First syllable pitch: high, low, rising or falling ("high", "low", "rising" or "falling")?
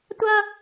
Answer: high